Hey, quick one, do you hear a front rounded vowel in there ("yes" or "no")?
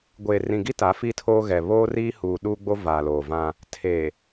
no